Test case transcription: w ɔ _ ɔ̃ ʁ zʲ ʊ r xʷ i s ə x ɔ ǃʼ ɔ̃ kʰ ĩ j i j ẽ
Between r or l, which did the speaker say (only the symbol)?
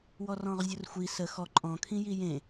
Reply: r